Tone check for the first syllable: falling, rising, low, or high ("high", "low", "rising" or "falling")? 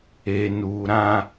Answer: low